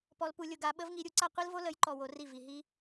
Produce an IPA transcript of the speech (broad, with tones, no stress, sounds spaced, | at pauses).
p ɔ˧ l p u˧ lʲ ʊ˧ ɡ a˧ ɓ ə˦ v ŋ i˧ ɾʲ u˨˦ ǀ a˦ qʷ i˦ l v o˦ l ə˨˦ j ǃ ɔ˨ w o˧ r i˦˨ v i˨ ɦ i˦